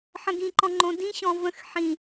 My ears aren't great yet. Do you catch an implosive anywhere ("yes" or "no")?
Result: no